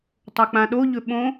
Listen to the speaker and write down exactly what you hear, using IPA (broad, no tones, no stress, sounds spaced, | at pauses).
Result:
tˤ o k͡p ã ɗ o ʎ ɵ ɓ õ